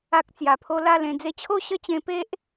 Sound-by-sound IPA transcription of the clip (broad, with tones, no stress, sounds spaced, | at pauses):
a˦ k̚ t͡s j a˧ pʰ o˦ l a˥˧ l ẽ˧ d͡z e˦ t͡ɕʰ o˥˧ ɕ ə˥˧ t͡ɕ ẽ˧ p e˦ ʔ